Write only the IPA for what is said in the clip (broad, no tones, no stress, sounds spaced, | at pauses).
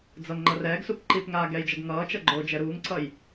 d͡z ʌ ŋ ŋ͡ǃ ʌ r ɛː ɡ s u p ǃ i p ŋ aː ɡ ɛ j d͡ʒ ʌ ɡ ŋ ʌː t͡ʃ ʌ ɡ͡ǃ oː d͡ʒ ɛ ɾ uː ŋ ǀ ʌ j